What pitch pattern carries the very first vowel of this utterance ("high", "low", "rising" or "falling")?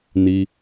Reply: high